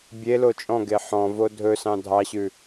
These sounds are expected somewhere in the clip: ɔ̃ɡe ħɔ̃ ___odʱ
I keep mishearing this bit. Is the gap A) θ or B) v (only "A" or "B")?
B